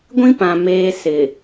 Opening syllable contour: high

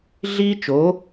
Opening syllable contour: high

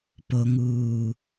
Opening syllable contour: low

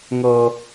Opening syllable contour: high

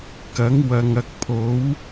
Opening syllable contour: rising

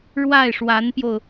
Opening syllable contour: falling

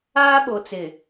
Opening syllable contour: high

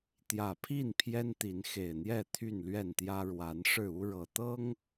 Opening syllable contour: low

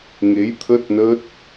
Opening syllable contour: rising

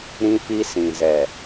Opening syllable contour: high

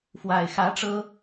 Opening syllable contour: low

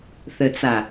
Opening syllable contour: low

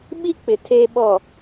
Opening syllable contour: high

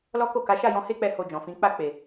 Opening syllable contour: high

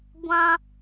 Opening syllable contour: high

